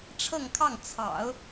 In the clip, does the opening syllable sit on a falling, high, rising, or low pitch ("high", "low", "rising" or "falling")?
falling